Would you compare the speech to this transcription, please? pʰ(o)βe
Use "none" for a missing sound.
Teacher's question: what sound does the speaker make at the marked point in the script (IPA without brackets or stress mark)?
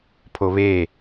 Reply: o